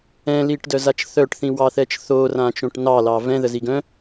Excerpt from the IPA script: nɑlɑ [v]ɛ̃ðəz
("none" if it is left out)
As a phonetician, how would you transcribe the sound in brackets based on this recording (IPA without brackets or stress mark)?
v